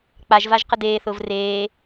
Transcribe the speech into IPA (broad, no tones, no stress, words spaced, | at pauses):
k͡paʒvaʒ qədeːθʊːv reː